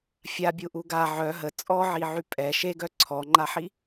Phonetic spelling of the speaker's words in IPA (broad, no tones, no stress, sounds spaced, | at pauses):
fʲ a bʲ u ʔ u ɡ a ʕ œ ɦ ə t͡sʼ ɔ ʕ i ʕ y pʼ ɛ ʃ e ɡ œ ǀʰ ɔ ŋ͡ǃ a ħ i